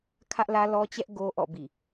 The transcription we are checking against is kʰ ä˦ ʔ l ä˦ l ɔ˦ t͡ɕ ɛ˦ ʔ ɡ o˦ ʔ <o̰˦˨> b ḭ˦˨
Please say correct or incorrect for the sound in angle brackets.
incorrect